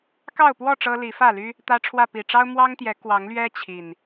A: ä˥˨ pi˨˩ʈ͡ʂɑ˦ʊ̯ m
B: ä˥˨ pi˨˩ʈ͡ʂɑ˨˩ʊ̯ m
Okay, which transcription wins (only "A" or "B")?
A